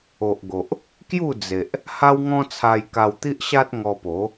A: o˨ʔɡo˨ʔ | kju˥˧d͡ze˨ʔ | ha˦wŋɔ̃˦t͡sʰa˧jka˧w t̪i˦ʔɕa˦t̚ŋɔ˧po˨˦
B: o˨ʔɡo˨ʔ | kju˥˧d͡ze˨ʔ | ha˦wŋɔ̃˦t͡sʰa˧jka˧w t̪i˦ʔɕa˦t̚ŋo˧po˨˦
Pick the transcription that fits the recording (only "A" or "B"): A